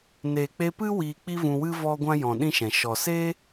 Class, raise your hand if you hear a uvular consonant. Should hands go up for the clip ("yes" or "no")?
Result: no